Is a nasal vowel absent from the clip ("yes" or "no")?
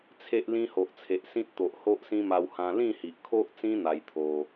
no